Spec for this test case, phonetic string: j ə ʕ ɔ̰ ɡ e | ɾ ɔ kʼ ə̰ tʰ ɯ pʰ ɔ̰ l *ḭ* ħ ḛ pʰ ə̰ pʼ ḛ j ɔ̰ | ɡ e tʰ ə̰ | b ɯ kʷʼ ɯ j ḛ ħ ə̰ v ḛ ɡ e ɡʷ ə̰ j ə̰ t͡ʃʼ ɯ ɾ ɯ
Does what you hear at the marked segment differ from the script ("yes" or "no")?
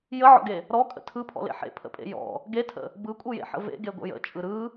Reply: yes